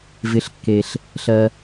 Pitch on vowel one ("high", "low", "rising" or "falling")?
low